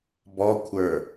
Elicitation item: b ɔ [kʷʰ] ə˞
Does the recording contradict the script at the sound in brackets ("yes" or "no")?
no